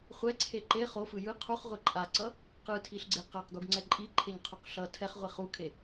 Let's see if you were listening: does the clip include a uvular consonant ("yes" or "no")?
yes